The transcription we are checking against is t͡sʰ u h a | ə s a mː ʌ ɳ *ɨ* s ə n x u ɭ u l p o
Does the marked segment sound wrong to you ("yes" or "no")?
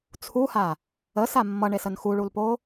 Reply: yes